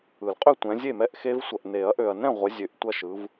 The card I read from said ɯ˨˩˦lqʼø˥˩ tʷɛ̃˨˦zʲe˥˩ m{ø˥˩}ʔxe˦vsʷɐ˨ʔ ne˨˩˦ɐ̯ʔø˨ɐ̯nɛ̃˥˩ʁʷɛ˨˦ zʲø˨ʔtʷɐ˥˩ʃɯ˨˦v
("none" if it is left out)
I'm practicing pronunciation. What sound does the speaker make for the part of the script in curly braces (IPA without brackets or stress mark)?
ɛ˥˩